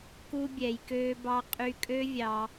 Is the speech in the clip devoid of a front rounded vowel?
no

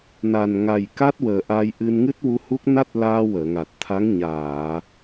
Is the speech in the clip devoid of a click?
yes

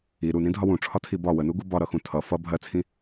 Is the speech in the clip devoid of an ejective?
yes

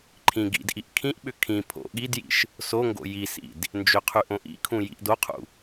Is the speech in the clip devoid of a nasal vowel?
no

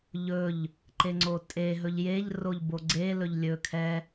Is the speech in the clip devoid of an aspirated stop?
no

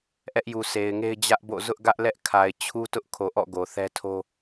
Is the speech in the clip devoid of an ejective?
yes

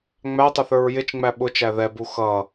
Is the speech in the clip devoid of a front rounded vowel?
yes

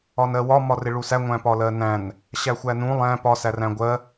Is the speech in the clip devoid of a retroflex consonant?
no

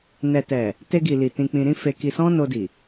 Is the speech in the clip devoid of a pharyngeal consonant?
yes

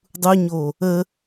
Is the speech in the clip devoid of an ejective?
yes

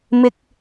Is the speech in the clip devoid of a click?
yes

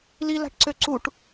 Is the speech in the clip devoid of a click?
no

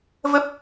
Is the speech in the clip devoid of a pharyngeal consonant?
yes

